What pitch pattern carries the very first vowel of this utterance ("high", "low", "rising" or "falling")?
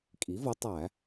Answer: rising